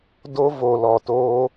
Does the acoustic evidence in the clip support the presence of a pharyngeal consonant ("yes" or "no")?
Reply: no